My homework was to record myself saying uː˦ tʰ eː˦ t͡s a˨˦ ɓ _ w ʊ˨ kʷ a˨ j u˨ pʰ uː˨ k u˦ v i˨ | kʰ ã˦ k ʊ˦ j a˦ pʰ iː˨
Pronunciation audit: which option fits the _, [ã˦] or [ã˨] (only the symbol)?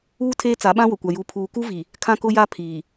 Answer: ã˦